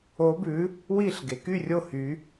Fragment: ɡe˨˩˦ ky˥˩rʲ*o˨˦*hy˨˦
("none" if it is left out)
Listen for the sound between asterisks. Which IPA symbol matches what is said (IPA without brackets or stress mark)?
o˥˩